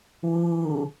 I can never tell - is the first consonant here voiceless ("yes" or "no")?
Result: no